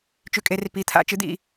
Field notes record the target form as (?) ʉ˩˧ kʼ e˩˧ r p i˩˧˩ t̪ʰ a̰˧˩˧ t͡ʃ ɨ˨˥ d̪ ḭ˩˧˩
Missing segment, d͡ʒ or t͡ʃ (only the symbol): t͡ʃ